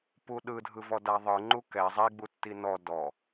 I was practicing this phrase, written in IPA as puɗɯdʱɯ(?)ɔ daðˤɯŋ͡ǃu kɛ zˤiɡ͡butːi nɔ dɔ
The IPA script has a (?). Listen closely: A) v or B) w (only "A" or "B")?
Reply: A